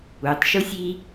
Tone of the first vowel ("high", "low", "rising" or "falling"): low